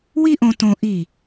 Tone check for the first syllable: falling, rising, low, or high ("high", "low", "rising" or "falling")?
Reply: high